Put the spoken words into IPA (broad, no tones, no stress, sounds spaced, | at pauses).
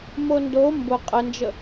m o n d o m b ʊ qʼ ə n d͡ʒ ə